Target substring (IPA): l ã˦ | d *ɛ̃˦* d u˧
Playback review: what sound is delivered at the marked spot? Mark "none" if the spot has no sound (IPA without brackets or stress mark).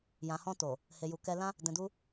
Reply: ɛ̃˨